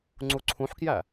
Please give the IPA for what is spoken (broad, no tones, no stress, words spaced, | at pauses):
ŋ͡ǀuǀʰũħkjæ